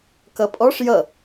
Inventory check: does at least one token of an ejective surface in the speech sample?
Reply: yes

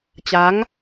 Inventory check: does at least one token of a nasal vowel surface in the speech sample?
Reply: no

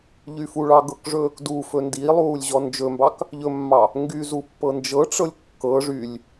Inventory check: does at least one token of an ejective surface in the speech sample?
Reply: no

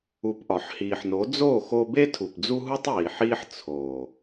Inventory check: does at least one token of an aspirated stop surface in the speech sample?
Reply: yes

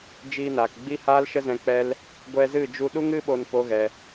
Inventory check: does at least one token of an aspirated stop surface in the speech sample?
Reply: no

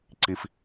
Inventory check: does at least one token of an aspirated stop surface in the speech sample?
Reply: no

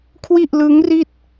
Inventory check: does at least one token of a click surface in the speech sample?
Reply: no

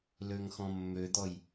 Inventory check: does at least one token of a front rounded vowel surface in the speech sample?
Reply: yes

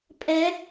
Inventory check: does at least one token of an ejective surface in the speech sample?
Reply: yes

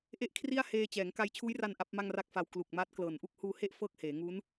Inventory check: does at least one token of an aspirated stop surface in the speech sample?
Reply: yes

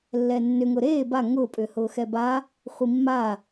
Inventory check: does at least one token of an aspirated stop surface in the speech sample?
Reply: no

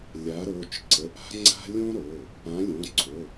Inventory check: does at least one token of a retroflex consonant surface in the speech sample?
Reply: no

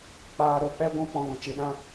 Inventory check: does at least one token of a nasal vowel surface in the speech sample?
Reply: yes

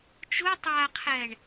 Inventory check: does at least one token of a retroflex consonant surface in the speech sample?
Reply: yes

